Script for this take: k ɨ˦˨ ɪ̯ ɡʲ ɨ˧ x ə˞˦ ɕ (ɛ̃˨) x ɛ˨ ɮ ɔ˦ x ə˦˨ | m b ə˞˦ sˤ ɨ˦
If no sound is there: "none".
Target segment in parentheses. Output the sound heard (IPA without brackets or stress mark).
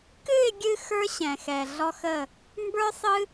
ɛ̃˨